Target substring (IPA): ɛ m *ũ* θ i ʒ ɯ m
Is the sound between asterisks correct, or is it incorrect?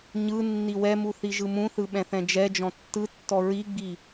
incorrect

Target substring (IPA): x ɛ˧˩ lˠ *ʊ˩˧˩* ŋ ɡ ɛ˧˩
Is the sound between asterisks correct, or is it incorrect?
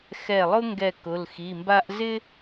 incorrect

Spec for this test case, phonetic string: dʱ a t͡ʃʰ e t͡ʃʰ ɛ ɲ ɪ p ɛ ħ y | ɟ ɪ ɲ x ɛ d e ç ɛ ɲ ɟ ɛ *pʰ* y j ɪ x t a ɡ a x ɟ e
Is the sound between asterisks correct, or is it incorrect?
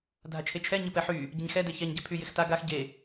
correct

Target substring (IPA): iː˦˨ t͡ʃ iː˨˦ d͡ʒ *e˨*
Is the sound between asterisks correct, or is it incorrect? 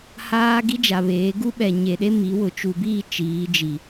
incorrect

